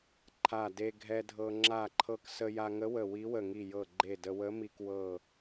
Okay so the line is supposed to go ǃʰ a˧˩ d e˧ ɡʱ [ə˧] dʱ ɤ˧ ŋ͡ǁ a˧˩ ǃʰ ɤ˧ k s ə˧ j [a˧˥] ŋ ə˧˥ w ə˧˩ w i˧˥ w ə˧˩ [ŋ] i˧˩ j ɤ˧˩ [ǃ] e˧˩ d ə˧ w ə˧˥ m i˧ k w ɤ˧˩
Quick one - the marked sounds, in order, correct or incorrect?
incorrect: ɛ˧, incorrect: a˧, correct, incorrect: ɡ͡ǃ

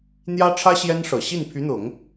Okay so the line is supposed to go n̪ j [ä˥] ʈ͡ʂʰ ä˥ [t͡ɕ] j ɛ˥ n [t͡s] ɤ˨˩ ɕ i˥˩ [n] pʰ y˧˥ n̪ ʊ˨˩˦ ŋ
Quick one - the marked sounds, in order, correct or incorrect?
correct, incorrect: ɕ, incorrect: ʂ, correct

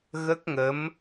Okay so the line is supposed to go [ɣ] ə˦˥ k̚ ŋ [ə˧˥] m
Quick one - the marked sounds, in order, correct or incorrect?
correct, correct

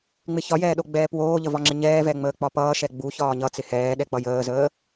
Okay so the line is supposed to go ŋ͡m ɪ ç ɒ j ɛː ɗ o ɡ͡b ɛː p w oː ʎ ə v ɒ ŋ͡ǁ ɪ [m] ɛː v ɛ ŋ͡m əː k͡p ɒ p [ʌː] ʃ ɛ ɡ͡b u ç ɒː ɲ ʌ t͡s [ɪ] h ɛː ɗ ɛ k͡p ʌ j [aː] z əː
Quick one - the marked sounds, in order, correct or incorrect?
incorrect: ɲ, correct, correct, incorrect: əː

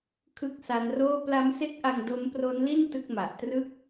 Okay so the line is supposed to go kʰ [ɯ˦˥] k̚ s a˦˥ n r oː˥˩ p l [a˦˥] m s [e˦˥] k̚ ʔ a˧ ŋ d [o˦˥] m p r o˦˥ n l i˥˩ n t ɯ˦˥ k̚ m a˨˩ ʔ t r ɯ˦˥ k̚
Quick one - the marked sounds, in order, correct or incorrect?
correct, correct, correct, correct

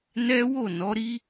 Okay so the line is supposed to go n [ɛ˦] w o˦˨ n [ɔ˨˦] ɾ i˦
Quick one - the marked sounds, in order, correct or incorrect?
correct, correct

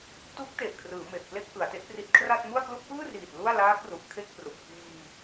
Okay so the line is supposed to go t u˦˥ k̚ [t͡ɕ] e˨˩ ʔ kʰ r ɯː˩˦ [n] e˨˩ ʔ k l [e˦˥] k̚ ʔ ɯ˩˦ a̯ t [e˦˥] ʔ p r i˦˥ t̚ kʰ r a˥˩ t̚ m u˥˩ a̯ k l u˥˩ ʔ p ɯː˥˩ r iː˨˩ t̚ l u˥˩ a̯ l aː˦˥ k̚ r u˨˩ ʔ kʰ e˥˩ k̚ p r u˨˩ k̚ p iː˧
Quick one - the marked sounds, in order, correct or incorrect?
incorrect: t, incorrect: m, correct, correct

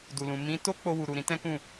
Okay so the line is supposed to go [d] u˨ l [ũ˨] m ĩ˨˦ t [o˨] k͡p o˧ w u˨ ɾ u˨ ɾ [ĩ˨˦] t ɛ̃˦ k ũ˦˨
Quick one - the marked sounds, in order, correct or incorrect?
correct, correct, incorrect: o˦, correct

